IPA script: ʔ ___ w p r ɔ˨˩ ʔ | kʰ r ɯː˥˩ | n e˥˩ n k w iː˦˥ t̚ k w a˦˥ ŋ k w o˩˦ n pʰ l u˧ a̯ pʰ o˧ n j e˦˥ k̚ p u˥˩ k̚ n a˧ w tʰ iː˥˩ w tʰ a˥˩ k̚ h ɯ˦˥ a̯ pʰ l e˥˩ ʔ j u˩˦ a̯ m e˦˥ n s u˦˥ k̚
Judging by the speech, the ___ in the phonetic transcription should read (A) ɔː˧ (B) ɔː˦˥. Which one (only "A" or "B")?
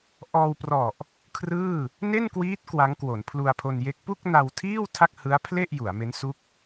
A